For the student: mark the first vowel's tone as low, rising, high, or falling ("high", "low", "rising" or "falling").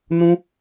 high